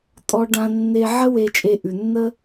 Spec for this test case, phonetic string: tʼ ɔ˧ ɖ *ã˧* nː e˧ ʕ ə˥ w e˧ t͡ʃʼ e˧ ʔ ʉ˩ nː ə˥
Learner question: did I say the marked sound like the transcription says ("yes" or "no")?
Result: yes